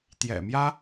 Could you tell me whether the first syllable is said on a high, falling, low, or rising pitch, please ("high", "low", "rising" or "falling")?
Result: low